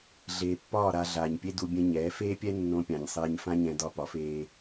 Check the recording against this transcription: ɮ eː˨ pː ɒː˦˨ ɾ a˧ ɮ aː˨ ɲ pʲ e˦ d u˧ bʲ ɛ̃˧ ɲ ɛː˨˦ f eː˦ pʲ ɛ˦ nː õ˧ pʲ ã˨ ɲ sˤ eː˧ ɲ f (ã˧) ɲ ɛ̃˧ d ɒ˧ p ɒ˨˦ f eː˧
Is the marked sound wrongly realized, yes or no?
yes